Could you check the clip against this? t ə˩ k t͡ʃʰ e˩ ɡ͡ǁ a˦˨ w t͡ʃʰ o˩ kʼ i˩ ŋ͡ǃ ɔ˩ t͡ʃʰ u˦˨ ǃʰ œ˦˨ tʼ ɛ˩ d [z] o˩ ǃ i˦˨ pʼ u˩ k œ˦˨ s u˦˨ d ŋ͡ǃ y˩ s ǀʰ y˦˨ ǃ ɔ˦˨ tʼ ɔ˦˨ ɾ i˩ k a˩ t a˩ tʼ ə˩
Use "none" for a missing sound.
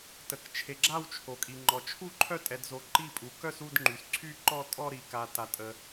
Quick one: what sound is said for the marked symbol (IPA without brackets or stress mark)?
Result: z